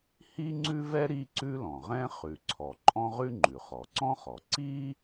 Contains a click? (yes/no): yes